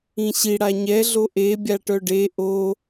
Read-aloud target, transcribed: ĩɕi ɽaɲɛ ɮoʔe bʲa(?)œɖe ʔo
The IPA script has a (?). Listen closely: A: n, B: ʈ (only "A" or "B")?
B